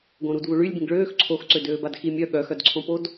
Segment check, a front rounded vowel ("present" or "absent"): present